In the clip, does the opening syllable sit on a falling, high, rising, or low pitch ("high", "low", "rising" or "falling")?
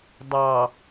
low